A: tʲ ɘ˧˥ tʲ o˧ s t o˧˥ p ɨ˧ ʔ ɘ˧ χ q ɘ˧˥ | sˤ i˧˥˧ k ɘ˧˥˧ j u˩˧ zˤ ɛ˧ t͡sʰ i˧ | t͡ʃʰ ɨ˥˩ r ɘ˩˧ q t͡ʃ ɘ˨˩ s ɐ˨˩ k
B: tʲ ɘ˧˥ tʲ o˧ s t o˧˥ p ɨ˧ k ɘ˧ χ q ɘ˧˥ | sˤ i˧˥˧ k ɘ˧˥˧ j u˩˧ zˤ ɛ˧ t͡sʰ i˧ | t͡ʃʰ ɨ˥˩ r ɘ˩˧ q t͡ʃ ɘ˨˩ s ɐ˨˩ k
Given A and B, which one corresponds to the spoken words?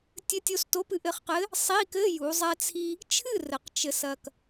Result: A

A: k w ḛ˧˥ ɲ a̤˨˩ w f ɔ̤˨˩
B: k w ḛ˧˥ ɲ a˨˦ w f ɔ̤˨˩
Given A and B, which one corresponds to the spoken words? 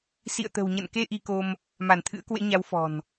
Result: B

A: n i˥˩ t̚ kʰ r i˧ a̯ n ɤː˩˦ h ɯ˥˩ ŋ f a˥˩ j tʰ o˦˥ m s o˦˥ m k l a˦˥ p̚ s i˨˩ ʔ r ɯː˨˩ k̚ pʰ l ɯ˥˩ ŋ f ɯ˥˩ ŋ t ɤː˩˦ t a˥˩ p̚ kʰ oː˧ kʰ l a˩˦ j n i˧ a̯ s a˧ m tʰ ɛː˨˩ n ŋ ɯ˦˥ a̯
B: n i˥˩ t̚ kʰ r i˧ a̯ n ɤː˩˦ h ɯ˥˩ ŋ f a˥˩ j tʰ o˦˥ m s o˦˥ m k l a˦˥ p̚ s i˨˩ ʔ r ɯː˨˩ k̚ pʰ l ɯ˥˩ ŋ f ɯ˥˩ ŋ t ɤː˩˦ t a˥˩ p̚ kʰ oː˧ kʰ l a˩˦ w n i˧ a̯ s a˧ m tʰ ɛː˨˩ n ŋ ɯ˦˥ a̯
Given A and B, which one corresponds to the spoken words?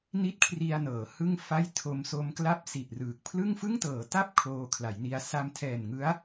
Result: A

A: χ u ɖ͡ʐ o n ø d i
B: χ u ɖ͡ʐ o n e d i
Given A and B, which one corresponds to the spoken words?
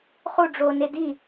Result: B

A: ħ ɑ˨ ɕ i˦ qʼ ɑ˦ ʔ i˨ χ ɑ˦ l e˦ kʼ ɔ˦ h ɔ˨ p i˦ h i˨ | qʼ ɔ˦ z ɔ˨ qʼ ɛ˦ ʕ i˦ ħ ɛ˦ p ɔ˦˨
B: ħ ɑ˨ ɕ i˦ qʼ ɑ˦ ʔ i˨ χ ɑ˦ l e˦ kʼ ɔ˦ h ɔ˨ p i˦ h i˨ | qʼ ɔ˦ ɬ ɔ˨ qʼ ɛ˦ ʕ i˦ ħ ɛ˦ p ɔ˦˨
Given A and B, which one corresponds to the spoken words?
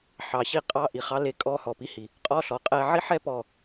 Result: B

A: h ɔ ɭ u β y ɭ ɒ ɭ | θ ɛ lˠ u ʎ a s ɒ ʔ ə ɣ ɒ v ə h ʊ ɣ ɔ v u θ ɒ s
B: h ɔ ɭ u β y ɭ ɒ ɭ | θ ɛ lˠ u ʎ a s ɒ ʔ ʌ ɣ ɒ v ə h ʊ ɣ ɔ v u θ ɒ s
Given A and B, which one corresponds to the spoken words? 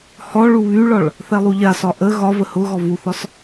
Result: A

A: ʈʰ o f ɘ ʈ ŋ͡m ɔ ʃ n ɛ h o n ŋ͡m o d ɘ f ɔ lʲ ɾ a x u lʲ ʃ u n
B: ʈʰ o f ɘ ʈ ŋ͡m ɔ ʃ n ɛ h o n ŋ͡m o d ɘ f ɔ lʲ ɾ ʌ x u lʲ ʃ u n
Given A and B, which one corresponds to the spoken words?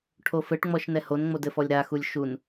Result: A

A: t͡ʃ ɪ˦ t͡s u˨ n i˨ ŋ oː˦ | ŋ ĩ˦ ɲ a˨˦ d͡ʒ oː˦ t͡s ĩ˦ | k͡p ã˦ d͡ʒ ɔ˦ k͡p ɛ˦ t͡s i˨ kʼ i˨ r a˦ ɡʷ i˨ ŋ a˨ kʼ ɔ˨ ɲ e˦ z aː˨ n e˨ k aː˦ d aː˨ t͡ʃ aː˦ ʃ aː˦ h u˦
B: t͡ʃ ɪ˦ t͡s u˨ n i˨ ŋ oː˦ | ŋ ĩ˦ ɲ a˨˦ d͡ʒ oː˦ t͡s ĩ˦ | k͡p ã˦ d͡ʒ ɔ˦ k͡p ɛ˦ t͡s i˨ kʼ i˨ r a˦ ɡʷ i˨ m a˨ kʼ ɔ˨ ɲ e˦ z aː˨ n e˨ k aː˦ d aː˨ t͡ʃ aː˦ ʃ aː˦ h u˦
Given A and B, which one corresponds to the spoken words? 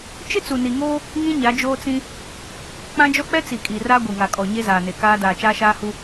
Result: A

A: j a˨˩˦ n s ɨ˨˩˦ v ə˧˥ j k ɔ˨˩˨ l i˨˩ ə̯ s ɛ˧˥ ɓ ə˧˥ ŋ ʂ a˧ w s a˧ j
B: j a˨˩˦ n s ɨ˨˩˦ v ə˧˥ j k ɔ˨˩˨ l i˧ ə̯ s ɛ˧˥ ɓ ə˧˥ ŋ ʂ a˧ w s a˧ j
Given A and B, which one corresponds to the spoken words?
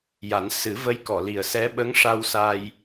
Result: A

